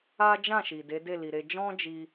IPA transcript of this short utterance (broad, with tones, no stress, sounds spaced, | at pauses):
a˦ d͡ʒ ã˦˨ ʃ i˨ d e˨˦ d e˦˨ l i˨ ɾ e˧ d͡ʒ ɔ̃˦ d͡ʒ i˧